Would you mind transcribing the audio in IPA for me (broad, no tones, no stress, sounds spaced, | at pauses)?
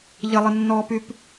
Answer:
ʎ ə lˠ ə nː ɔː p y p